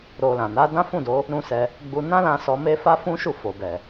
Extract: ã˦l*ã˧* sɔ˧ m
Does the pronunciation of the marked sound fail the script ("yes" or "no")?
no